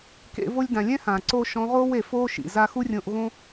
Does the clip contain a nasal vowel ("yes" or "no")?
yes